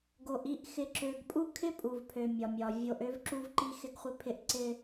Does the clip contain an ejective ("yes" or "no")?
yes